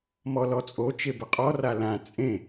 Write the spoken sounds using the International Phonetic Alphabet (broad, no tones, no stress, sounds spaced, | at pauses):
m ɔ l ɔ t͡sʼ o t͡ʃ e b ə qʼ ɔ r a l ã t͡sʼ ẽ